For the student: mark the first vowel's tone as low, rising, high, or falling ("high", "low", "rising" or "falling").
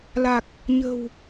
low